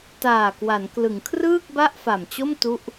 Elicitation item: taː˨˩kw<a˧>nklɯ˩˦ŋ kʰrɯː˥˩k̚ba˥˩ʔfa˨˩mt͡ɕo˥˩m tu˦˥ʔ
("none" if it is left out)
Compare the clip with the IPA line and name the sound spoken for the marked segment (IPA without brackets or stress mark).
a˩˦